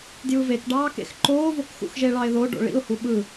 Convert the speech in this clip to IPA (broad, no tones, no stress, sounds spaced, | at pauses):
d j ɯ v e k ɖ ɑː k ḛ x ǃ oː v o k x ṵ x ʒ e ɭ ɑ ɪ̯ ð o ɖ o̰ ɭ ḭ ʊ̯ h u ɓ ɯ